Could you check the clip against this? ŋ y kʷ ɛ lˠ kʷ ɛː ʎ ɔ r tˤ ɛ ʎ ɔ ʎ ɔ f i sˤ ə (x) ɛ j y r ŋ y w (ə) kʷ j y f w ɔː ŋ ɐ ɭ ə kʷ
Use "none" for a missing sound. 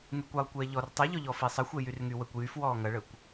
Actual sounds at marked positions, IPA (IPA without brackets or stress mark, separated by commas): xʷ, ə